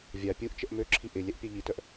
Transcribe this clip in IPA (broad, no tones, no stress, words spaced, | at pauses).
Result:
vʲa pʲuʔt͡ʃəʔ møǁʰi ʔɪ lʲɛʔpʲœʎitœʔ